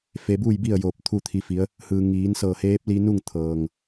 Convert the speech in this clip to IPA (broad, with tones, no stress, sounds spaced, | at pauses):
f e˧ b uː˥˨ j b i˥˨ ə̯ j oː˧˩ p̚ t̪ʰ u˥˨ t̪ʰ i˧˥ f i˧˥ ə̯ | h ɯː˩ ŋ iː˩˧ n s ɤː˧˩ h eː˧˥ p̚ l i˧ n u˥˨ ŋ t̪ʰ ɤː˩ ŋ